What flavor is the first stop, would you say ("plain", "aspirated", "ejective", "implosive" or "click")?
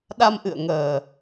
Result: implosive